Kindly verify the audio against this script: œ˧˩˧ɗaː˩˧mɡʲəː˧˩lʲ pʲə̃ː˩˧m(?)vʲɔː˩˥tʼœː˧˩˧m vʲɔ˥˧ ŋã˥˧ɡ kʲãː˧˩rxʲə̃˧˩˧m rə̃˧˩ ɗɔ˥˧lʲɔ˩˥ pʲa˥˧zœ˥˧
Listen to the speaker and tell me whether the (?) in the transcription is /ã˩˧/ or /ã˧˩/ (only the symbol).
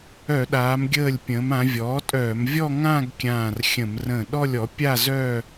ã˩˧